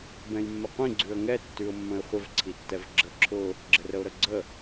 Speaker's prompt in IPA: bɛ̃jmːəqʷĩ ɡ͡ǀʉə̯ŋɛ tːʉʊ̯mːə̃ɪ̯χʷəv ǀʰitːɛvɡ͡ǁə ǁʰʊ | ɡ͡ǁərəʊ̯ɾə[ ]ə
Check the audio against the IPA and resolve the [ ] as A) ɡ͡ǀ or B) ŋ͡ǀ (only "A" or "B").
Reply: A